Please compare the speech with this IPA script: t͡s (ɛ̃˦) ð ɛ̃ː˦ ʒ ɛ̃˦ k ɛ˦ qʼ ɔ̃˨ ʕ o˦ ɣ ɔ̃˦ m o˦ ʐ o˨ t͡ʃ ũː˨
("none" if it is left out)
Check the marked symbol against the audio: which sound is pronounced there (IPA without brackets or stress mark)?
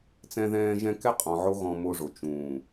ɛ̃˦